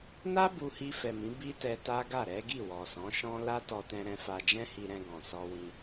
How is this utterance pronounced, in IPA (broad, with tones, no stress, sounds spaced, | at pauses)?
n a˦ b u˧ h i˧ f ɛ˨ m ĩ˨˦ b i˦ t ɛ˧ t a˦ ɡ a˦˨ ɾ ɛ˨˦ ɡ i˦˨ w ɔ˨ s ɔ̃˨˦ ʃ ɔ̃˦ l a˦ t ɔ˧ t ɛ̃˧ ɾ ɛ̃˧ f a˧ d͡ʒ ɛ̃˦ h i˧ ɾ ɛ̃˧ ɡ ɔ̃˨ s ɔ˧ w ĩ˧